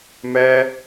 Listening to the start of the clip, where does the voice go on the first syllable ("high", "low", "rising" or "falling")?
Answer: high